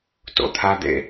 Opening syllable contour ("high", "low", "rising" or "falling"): low